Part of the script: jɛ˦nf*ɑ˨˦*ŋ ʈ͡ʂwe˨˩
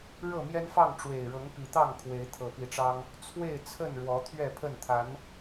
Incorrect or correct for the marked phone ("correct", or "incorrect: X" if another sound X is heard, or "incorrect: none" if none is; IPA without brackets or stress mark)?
incorrect: ɑ˥˨